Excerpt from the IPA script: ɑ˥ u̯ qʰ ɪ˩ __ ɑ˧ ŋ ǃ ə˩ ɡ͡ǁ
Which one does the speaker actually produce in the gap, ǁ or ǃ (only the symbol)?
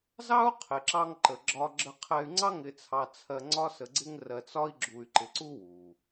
ǁ